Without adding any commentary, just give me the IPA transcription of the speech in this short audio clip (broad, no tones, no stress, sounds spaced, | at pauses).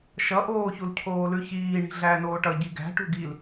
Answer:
ʃ ʌ ʔ oː ç u l cʰ oː l ʉ ç iː ɳ i̤ ɮ æː n oː ʈ ʌ ɟ i ɡ æ̤ ʈ ṳ ɡ i l